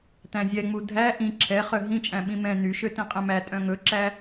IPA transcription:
t æ̃ zʲ ɛ ŋ͡m u dʱ æ ʔ ĩ ǁʰ ɛ χ œ ɦ ĩ t͡ʃʼ æ̃ ɓ ĩ m ɛ̃ n y ʃ ø t ĩ qʼ ɛ̃ m æ tʼ œ̃ ŋ ɵ ǁ æ

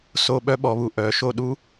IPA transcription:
s o˦˨ ɓ œ˦˥ ɓ ɔ˩˧ β u˩˧ ʔ œ˩˧ ʃ o˦˨ ɗ u˦˥

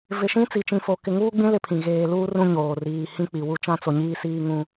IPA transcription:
v ɪ˨ ʃ ĩ˦ t͡s i˨ t͡ʃ ĩ˨ f o˨ k ɪ˨ ŋ uː˦ ɡ͡b ĩ˦ l ɪ˦ pʰ ĩ˨ ɣ eː˨ l uː˦ r ũ˦ ɲ oː˨ r iː˨ h ĩ˦ k͡p i˨ w u˦ t͡ʃ ã˦ t͡s o˨ ɲ iː˦ s iː˦ ŋ ũ˦

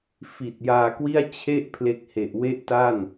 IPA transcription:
f i˨˩ t̚ j aː˧ k w i˥˩ a̯ t͡ɕʰ e˥˩ ʔ pʰ l e˦˥ k̚ h e˨˩ ʔ w e˥˩ ʔ t a˥˩ n

